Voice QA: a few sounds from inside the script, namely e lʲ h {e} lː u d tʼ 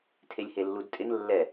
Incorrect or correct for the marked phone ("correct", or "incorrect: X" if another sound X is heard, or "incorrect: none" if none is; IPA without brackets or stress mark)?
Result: correct